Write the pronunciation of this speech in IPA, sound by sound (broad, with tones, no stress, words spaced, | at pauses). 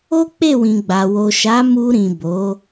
o˦k͡pe˦˨wĩ˨ɡ͡ba˨ wo˨ʃa˨˦mu˧ɾĩ˨ bo˨˦